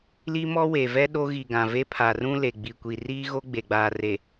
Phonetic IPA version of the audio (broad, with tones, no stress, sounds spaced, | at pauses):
l i˦ m ɔ˦ w e˨ v ɛ˦ ɗ o˦ ɣ i˨ ɡ ã˨ v e˦ pʰ a˨ r ũ˦ l e˨ ɡ͡b i˨ kʷ i˨ r iː˦ ɣ o˦ ɡ͡b e˨ ɡ͡b aː˨ r e˨